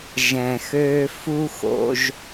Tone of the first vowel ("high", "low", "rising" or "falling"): low